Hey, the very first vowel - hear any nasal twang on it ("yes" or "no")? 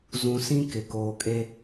yes